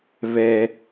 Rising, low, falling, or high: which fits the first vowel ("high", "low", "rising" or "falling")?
high